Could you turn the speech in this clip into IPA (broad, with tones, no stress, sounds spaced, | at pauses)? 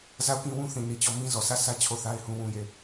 z a˦˨ ʊ̯ k ĩ˦ w ũ˦ θ ĩ˨ n i˨ t͡ɕ ɔ˦˨ m ĩ˦ z ɔ˨ s ä˦˨ sʰ ä˦ t͡ɕʰ o˦˨ θ a˦ ɪ̯ h ũ˦ w ũ˦ j e˦˨